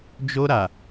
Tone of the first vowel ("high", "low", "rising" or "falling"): high